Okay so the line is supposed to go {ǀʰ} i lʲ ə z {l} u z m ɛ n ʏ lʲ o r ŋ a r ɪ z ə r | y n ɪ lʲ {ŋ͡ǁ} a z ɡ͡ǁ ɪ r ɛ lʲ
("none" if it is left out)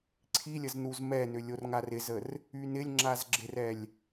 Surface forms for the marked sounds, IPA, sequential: ǀʰ, n, ŋ͡ǁ

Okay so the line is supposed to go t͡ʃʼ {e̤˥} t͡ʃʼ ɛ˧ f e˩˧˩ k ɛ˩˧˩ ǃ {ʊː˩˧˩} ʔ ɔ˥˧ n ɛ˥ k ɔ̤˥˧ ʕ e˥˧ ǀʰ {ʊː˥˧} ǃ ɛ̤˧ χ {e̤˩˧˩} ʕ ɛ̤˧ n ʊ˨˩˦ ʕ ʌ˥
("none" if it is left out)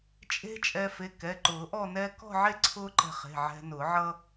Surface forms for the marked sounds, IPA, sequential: e̤˥, ʊː˨˩˦, ʊː˥, e̤˩˧˩

